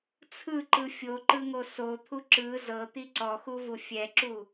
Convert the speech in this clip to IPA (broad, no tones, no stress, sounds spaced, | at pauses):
t͡sʰ ɯ ǃ ɯ fʲ o ǃ ɯ ŋ o s o t̪ʰ u ǁ ɯ z ɤ t̪ i ǀ ɔ x u v u fʲ ɛ ǁ u